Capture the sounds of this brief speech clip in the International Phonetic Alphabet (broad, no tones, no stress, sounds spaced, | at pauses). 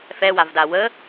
f ɛ w a v d a w ə